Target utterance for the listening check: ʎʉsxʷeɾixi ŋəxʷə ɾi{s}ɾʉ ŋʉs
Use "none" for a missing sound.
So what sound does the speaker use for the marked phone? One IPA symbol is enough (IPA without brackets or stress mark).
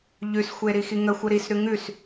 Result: s